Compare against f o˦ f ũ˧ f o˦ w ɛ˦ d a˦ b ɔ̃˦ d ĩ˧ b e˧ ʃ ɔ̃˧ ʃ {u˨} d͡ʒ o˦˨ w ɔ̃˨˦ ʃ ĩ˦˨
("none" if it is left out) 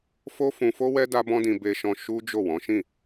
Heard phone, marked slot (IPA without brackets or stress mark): u˦